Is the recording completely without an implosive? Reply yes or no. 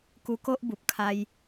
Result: yes